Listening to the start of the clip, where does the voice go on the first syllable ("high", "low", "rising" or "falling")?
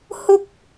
high